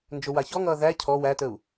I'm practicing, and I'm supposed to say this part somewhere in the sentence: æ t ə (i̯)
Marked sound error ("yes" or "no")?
yes